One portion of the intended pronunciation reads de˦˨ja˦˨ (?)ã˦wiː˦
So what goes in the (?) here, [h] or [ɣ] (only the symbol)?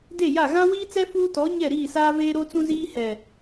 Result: ɣ